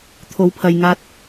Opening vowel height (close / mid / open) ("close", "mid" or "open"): mid